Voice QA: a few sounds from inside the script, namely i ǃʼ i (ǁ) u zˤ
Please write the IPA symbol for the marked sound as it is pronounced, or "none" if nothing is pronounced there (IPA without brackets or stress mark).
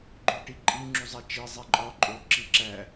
ŋ͡ǁ